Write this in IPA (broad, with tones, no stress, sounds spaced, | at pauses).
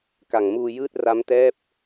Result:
k a˨˩ ŋ m uː˧ j ɯː˥˩ t̚ r a˦˥ m t ɛː˥˩ p̚